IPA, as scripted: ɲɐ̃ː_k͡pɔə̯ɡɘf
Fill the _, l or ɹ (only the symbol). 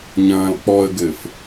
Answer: l